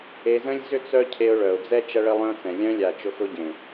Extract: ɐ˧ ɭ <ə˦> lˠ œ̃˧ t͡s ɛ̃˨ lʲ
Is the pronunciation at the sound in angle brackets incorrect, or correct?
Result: incorrect